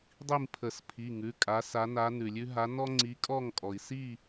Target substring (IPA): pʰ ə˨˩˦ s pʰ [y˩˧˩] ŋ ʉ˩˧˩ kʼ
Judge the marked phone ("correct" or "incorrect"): incorrect